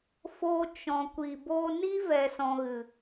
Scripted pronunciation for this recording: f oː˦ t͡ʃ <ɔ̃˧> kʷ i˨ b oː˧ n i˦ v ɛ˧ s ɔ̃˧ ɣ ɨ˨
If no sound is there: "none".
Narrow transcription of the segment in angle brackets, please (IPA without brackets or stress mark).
ɔ̃˧